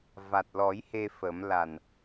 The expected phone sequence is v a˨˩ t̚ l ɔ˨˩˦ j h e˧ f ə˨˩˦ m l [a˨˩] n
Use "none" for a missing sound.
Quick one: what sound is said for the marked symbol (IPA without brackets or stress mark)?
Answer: a˨˩